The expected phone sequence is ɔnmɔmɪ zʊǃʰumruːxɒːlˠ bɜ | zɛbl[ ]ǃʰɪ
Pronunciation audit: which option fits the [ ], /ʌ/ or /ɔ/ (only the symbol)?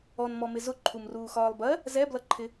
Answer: ʌ